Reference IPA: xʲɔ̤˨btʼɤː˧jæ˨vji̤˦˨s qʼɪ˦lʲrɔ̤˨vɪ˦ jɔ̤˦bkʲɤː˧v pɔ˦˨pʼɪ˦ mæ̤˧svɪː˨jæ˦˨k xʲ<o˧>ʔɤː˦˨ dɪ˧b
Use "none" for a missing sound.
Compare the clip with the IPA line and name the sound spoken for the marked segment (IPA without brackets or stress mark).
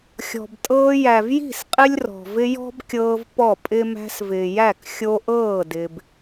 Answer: o˧